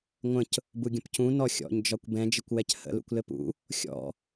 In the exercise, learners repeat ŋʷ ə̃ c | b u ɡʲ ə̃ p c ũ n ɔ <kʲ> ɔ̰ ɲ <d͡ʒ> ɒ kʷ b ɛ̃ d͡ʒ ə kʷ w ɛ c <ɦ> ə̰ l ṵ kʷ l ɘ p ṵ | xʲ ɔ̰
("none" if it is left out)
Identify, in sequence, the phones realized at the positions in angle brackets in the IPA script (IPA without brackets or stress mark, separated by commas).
xʲ, d͡ʒ, h